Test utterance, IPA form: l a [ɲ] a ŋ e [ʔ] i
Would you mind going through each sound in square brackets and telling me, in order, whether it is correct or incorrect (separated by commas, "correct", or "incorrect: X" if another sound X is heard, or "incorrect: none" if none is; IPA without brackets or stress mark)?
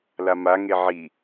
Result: incorrect: m, incorrect: ʕ